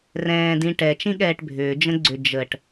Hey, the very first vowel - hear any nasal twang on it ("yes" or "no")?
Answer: yes